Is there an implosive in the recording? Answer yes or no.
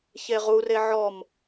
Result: no